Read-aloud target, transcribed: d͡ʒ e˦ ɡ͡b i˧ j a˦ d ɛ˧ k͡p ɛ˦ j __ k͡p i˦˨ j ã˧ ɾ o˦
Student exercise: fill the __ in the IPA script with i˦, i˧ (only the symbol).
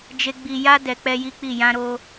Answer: i˦